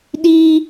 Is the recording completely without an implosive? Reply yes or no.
no